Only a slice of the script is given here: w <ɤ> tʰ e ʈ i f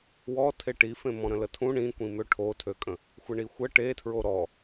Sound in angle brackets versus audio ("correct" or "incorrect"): incorrect